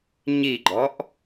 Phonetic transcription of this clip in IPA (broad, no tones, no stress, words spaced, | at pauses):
ɲiɡ͡ǃɔʔ